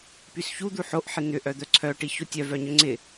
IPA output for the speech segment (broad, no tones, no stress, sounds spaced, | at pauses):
p y s ç u d̪ u ħ o ʔ ħ ɪ n̪ ʏ ʔ œ d̪ œ ǀʰ œ ʈ i ç o tʲ œ v œ ɲ ʏ ŋ͡ǀ ɪ